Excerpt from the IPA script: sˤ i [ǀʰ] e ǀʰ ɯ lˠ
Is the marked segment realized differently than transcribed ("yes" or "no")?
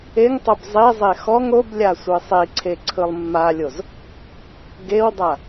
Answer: no